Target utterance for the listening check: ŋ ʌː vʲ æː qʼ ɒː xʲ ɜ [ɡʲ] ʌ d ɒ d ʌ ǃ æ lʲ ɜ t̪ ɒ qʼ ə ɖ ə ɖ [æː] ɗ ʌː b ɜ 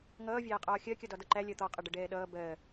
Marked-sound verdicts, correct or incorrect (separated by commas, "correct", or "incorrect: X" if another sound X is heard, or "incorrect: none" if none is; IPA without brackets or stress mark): incorrect: kʲ, incorrect: ɛː